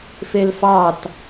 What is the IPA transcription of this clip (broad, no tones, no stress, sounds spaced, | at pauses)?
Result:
f e l f ɑ t